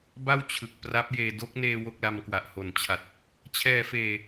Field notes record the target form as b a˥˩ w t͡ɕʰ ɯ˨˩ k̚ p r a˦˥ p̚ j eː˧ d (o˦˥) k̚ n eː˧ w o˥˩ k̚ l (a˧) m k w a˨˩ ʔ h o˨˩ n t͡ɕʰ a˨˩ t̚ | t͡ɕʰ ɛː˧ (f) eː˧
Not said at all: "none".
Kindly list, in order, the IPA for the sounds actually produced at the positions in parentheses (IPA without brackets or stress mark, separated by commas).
o˦˥, a˧, f